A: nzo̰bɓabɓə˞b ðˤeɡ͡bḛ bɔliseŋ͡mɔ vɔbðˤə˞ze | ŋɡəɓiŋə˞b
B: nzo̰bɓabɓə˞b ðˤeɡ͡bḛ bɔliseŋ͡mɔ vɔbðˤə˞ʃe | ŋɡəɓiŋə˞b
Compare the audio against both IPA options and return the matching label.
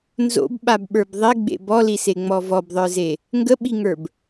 A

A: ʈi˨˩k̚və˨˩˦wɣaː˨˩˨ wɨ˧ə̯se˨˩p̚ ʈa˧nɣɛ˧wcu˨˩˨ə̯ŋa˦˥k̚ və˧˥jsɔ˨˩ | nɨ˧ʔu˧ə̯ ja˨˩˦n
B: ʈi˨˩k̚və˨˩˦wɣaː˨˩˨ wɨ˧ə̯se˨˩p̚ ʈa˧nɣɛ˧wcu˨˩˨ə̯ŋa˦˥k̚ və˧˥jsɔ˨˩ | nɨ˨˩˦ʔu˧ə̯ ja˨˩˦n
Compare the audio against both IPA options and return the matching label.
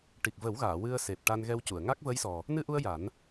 A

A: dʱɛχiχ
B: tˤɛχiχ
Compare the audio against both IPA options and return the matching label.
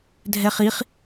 A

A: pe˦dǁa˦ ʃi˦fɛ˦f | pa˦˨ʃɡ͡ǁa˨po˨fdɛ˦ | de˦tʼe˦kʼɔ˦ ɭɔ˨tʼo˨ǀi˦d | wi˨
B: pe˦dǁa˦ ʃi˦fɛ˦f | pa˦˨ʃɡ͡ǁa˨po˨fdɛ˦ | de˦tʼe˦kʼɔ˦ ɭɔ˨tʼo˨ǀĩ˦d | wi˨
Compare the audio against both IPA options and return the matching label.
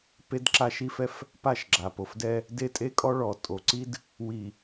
A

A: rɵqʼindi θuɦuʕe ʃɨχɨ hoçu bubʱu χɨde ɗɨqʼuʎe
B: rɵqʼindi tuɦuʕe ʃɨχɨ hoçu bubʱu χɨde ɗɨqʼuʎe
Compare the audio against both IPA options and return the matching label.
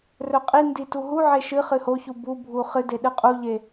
B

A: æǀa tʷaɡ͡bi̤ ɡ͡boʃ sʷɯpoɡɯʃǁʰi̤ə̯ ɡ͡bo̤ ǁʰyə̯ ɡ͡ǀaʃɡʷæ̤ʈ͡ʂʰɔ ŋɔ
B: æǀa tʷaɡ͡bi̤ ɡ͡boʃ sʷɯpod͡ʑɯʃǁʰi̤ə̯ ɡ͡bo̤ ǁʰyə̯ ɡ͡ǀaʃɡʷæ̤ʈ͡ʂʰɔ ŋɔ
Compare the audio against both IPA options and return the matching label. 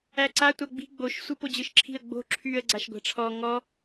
B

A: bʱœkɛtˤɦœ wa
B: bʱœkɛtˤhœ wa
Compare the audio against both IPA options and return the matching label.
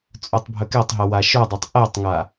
A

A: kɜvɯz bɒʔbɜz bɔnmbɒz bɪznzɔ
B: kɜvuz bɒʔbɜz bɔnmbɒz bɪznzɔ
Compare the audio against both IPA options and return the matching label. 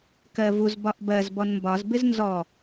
B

